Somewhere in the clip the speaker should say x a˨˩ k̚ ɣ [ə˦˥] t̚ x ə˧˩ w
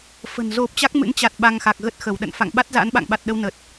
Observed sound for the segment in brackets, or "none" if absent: ə˦˥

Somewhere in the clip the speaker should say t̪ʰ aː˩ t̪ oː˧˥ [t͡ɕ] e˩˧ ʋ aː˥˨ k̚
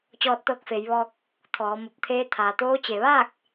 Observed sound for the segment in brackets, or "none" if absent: t͡ɕ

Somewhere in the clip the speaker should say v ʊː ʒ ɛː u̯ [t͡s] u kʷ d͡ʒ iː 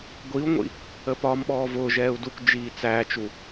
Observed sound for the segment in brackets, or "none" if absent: d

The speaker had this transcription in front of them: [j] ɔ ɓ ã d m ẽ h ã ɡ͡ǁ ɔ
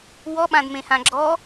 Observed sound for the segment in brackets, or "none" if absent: w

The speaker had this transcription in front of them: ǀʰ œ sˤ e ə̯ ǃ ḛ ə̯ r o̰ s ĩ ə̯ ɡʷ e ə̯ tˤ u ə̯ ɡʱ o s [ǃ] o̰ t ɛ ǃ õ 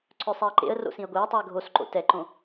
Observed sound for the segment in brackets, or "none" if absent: ǃ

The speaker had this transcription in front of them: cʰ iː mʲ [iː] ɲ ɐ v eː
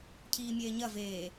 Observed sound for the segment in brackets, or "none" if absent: eː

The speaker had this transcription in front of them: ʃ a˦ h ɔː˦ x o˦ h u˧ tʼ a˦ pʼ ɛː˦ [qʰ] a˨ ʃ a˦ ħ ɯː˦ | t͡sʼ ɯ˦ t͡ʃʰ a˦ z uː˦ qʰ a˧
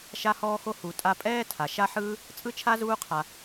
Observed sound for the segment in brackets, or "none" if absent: tʰ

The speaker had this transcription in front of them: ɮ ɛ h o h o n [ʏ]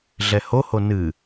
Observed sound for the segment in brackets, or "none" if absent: ɨ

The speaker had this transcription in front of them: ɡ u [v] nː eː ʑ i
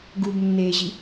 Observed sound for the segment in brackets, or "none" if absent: b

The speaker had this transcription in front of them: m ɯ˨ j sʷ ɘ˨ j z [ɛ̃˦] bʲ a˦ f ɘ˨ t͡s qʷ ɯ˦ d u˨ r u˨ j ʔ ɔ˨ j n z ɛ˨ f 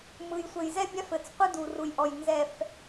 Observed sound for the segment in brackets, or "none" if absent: ɛ˦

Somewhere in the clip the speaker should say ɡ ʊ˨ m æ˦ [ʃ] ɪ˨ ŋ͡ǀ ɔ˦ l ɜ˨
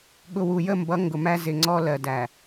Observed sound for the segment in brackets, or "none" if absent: z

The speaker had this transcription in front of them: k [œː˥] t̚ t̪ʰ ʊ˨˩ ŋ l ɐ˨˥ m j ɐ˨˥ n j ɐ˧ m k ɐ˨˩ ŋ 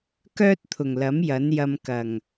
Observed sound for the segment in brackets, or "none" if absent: œː˥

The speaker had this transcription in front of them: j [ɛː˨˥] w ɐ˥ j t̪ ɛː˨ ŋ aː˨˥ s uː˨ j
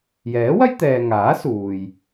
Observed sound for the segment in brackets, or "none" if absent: ɛː˨˥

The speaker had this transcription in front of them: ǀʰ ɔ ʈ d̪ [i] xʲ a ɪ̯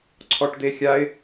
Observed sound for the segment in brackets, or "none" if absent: e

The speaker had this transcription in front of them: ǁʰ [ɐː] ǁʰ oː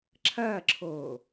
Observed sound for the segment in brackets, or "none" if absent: ɐː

